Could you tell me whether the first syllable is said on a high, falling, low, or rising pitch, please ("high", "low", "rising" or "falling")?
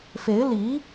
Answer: rising